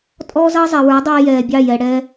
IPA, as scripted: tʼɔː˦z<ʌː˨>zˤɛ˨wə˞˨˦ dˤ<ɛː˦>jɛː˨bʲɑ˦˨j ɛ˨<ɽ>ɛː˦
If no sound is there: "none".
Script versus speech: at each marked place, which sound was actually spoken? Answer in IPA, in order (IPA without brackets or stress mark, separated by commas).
ʌː˦, ɛː˦, ɽ